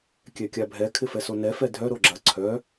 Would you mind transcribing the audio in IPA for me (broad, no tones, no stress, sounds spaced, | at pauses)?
kʲ ɛ kʲ a bʱ ɛ kʰ ɪ f ɛ s o n ɛ f ɛ dʱ œ ɾ o ɡ͡ǁ ɐ ǀʰ œ